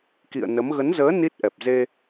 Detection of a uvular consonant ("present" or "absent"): absent